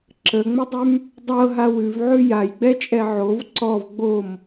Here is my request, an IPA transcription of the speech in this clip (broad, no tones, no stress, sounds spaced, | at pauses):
ǁ ə ŋ͡m ə dˤ ʉ m | dˤ ɤ ɦ a w ʉ v ʕ ʉ j a j ɡ͡b ɛ t͡ʃʼ ɛ ʕ o v ǀ ɔ v ɡ͡b o m